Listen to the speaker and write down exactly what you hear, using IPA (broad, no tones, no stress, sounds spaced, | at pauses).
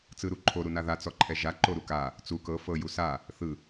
t͡s ɯ ɾ u ǃʰ o ɾ u n a ð a t͡s ɔ ǃʰ ɛ ʒ a ǃ o ɾ u k a | t͡s u k ɤ f ɤ j u s a | θ ɯ